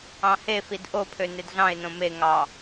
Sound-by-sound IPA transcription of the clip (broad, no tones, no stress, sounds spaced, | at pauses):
ɑ̃ h e f i d ʔ o pʰ ø n e d ɮ ɑ̃ ɪ̯ n õ m e ŋ ɑ